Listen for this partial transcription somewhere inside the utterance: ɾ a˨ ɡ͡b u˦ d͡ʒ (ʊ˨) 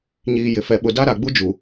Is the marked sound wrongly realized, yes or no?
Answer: yes